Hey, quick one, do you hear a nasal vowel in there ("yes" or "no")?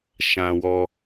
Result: yes